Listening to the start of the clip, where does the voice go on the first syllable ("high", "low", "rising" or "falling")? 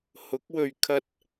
rising